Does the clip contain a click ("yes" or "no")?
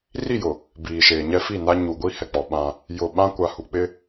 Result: no